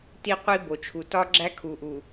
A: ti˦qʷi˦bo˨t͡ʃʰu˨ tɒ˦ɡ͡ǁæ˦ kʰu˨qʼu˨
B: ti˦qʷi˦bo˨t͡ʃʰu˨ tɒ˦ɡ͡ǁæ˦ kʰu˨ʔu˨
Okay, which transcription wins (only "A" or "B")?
B